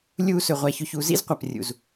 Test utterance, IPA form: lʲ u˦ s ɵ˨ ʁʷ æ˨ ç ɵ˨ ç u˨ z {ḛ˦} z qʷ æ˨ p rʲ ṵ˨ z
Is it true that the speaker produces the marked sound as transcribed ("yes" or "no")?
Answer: no